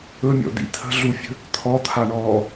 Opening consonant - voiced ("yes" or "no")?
yes